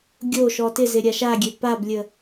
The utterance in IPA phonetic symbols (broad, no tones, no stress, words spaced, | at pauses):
ɡʲoʃɔ tɪzɪ ɾʲaʃaɡʲø pablʲə